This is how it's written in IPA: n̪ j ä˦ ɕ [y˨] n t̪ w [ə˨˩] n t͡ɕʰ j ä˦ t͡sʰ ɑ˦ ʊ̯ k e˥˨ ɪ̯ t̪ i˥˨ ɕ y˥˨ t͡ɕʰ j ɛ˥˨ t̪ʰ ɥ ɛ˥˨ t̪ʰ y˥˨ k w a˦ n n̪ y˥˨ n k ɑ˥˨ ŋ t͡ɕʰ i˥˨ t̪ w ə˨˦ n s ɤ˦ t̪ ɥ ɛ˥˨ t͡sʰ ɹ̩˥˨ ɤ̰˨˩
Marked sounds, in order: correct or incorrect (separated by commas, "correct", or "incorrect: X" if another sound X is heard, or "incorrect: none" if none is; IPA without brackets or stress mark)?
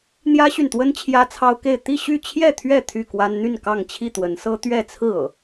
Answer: correct, incorrect: ə˦